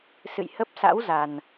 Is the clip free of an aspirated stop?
yes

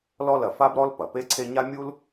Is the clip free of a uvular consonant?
yes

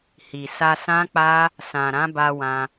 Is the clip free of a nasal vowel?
no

